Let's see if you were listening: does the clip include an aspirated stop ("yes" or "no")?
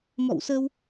no